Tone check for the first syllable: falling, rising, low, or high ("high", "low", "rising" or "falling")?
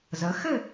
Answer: rising